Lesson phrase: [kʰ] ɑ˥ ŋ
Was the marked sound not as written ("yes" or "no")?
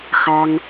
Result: yes